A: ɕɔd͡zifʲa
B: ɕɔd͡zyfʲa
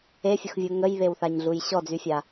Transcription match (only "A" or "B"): B